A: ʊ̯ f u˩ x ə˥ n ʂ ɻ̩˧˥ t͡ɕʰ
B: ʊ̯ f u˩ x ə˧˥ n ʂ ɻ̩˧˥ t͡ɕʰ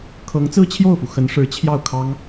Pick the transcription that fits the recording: B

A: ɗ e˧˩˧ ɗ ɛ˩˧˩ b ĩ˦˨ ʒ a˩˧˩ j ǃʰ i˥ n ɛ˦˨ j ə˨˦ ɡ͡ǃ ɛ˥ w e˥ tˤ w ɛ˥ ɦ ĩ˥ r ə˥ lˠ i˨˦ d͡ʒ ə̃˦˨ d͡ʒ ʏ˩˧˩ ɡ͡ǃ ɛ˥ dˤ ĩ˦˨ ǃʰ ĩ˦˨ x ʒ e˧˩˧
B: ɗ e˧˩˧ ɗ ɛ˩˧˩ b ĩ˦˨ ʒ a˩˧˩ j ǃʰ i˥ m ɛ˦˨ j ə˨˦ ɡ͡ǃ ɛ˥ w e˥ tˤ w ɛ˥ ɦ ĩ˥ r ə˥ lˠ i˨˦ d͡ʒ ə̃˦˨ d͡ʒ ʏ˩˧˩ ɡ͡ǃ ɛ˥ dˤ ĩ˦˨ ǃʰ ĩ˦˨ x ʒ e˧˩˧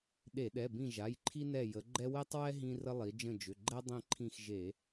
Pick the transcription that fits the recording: A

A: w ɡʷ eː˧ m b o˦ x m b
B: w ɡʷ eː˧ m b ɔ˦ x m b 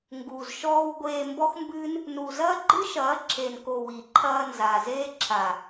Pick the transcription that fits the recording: B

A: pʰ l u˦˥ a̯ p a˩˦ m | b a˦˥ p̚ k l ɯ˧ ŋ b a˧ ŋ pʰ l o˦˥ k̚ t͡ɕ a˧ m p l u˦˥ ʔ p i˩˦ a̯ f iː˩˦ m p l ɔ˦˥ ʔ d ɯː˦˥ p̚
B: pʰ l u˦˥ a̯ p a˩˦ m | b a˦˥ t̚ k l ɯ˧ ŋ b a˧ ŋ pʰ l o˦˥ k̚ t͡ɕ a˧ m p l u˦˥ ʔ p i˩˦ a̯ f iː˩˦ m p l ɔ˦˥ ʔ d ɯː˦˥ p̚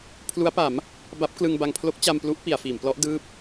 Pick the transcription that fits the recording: A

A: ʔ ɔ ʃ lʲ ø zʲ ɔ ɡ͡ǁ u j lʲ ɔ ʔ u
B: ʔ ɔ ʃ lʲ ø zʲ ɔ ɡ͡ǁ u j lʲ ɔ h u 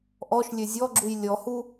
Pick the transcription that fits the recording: B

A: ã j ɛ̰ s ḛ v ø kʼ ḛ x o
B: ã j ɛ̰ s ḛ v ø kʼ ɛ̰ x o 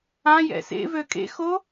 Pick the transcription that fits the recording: A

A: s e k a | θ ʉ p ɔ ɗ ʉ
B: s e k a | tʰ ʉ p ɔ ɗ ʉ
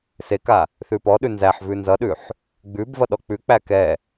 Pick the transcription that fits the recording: A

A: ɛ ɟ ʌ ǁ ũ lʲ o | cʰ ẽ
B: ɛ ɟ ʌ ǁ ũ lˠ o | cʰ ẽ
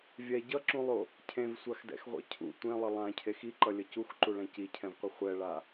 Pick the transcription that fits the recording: B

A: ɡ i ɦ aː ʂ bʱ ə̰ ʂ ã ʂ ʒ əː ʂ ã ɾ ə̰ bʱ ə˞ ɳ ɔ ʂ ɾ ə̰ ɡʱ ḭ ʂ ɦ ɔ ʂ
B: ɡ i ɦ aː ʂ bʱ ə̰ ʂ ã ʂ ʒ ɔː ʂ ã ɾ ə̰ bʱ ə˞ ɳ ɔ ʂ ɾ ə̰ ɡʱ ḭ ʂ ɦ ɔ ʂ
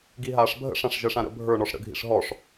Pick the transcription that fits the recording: A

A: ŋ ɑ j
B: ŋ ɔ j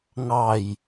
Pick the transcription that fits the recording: A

